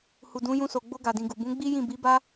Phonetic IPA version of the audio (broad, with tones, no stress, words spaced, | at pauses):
hu˨dũ˨˦jũ˧so˨ ɡ͡bo˧ɡa˨dĩ˨ ɡu˨ bũ˨˦ɡ͡bi˦jĩ˦˨ bi˨˦ba˦